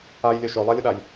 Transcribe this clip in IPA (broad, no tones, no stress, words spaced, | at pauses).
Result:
ajlʲø ʃølˠalʲʊɗaj